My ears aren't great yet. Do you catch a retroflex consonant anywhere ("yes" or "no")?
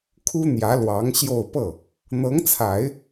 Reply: no